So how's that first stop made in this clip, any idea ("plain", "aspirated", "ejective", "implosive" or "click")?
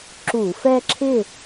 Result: click